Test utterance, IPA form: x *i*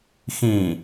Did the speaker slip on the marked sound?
yes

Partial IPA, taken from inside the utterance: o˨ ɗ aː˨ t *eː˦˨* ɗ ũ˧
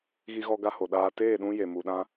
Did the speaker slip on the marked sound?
no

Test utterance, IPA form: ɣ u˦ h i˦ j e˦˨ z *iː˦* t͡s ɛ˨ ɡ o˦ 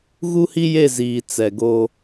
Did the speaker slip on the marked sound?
yes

